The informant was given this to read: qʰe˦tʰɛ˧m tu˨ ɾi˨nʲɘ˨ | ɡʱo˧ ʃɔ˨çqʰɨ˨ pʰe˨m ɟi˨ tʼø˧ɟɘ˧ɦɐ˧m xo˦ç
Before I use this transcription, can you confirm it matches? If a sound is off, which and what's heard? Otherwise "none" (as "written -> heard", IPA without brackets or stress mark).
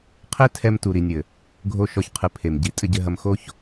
ø˧ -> ɘ˧